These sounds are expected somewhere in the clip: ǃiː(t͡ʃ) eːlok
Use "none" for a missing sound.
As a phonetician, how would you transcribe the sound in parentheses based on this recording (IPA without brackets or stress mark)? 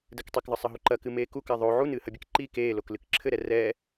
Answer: k